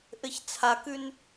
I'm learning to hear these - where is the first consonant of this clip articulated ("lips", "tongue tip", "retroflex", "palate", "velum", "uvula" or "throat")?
throat